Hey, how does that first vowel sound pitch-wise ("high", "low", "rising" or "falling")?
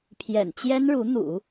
low